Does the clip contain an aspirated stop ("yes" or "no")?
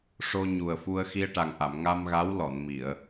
no